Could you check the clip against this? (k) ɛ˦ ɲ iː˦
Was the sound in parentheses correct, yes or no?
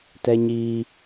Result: no